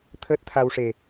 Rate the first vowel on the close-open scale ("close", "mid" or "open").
mid